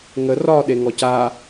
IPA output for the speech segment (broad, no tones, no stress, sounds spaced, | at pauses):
ŋ ə r ɒ ɗ e ŋ ɔ c a